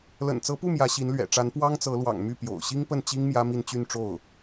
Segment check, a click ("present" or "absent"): absent